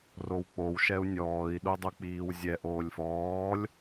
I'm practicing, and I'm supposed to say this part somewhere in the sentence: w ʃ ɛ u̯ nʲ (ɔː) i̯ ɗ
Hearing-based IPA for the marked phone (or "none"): ɔː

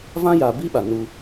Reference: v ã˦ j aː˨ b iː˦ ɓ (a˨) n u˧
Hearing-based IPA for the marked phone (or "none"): a˨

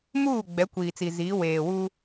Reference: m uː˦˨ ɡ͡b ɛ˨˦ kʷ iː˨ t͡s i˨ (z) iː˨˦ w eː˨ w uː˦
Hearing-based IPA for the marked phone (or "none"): z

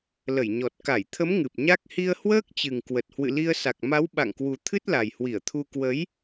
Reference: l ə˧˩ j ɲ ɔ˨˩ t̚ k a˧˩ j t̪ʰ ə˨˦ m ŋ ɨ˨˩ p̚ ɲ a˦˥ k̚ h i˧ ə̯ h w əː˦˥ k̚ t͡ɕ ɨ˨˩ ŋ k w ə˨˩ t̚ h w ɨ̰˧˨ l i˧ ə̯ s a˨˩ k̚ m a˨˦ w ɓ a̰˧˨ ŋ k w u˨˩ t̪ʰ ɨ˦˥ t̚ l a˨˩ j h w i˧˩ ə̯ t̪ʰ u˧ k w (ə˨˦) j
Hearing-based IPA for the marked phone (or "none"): ə˨˦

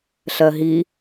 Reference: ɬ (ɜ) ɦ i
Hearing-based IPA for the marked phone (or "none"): ɜ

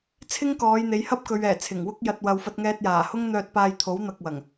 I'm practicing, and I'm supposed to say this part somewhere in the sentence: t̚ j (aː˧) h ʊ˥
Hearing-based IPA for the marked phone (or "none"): aː˨˩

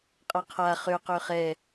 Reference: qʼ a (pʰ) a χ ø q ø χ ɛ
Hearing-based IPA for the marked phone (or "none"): qʰ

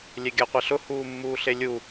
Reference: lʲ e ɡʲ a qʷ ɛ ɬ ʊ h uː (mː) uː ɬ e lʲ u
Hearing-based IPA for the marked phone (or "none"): mː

